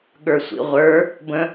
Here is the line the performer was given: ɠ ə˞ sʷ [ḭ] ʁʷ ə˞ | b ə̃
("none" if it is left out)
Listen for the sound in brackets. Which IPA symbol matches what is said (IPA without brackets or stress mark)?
ḭ